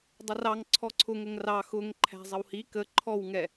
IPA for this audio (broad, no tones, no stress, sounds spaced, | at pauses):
dˤ ʌ r ɑ ŋ ǀʰ ɔ ǀʰ ʊ ŋ ə ŋ r ɑ x ʊ ŋ ǃʰ æ̤ zˤ ə w h i k ə ǃʰ ɔ w ŋ ɛ